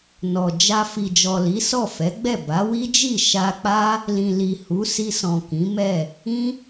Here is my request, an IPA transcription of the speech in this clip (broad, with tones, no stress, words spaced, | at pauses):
nɔ˨ d͡ʒa˧ fi˨d͡ʒɔ˨ li˨˦sɔ˦˨ fɛ˨˦ɡ͡bɛ˦˨ ba˨˦wi˦d͡ʒi˦˨ ʃa˧k͡pa˦ | lĩ˨li˨ hu˨˦si˧sɔ̃˨ kĩ˨˦mɛ˦˨ | ĩ˦